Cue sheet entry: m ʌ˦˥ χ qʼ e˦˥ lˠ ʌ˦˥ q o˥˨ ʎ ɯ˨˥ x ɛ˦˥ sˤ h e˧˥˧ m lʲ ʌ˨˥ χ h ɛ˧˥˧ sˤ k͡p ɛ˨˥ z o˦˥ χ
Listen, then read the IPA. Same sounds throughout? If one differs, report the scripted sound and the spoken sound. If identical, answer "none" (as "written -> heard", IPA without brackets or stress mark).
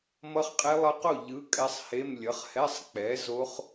x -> kʼ